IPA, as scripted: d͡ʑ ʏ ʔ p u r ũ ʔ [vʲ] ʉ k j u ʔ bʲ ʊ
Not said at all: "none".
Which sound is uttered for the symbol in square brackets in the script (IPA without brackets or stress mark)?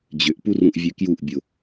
vʲ